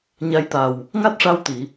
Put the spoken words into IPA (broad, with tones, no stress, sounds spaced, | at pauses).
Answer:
ɲ a˧˥ j t̪ a˨˩ w | ŋ a˦˥ t̚ ʂ a˧ w t̪ i˨˩˨